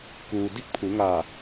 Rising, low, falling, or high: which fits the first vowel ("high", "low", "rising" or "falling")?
low